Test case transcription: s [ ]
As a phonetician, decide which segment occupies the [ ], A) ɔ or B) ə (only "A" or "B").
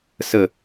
B